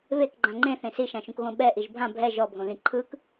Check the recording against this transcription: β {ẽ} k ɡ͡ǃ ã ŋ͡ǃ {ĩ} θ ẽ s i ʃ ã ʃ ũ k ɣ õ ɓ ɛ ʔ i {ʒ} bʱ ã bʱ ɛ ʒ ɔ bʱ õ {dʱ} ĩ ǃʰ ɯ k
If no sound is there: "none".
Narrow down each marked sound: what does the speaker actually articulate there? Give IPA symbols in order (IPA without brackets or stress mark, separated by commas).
e, ẽ, ʒ, ð